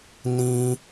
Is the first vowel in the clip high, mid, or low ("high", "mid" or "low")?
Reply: high